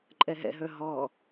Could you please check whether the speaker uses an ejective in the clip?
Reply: yes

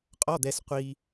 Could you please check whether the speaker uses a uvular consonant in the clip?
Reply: yes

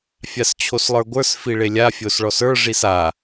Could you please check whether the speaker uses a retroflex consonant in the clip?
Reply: yes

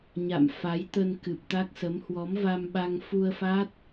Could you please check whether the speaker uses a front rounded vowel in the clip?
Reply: no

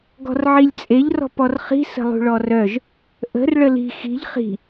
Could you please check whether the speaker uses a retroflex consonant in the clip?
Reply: yes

